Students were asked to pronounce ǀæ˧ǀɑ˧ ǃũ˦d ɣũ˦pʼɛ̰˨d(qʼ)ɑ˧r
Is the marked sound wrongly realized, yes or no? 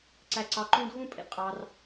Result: no